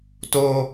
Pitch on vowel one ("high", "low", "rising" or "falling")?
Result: high